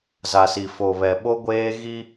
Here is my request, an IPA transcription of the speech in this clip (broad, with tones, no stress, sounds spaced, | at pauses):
z a˨ s i˨ f o˨ β ɛ˨ ɓ o˦ ɡʷ eː˦ ɣ i˦